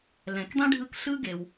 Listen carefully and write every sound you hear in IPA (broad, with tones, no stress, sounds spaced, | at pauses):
l ɛ̃˩ k dˤ ĩ˥ ɖʱ ɯ˦ k ɬ ɯ˥ ɡ e˩ w